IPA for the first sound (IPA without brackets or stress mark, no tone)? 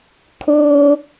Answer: kʰ